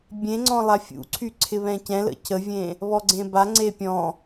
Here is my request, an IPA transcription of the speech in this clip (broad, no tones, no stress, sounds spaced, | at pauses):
bʲ ẽ ŋ͡ǀ ɔ̃ lˠ a fʲ ṵ ǀʰ y ǀʰ ɪ β ɛ̃ c ɛ̃ l ə̰ cʰ ə vʲ ẽ | β ɔ ɡ͡ǀ ẽ b a ŋ͡ǀ e pʲ ɔ̃